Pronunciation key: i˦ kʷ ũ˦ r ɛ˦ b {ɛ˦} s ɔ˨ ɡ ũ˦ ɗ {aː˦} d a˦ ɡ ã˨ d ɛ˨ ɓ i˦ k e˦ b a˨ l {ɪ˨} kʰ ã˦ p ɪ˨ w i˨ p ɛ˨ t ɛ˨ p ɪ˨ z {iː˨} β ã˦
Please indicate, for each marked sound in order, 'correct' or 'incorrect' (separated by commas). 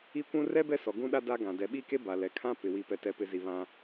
correct, incorrect, incorrect, incorrect